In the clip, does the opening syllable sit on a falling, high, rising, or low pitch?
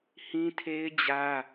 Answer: high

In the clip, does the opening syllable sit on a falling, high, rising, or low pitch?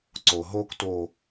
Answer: low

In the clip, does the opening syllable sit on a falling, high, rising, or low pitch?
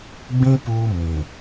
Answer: high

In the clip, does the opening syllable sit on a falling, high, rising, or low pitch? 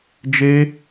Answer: high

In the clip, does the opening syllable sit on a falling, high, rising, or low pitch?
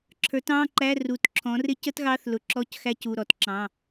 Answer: rising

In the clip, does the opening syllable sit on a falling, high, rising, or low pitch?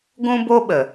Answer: high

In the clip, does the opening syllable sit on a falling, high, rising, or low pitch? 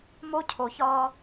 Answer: high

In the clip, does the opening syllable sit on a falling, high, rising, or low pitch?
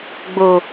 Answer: low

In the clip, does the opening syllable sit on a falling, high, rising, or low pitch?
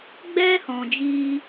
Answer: high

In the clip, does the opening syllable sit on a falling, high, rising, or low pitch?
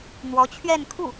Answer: rising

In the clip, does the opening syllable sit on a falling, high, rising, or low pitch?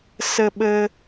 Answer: high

